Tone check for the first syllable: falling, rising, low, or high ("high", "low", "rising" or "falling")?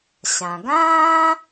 low